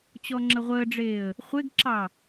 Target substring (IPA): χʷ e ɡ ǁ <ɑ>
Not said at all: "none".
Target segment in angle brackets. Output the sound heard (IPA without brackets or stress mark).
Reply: ɑ